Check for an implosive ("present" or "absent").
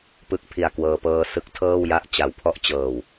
absent